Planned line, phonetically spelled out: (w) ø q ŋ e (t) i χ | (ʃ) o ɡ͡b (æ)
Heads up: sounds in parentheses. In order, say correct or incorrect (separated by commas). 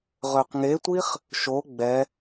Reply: incorrect, incorrect, correct, incorrect